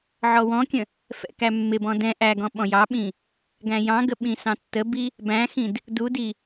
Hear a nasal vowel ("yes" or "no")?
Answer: yes